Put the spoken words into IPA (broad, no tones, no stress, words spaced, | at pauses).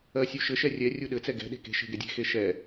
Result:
ɜsʲuʃɘʃɛ rʲɛ rʲuɗɘt͡sɛ ɡɛ̤ɗe̤ ke̤ʃe̤ ɡɛdʲe̤xe ʃɛ